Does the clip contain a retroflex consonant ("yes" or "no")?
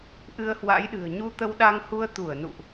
no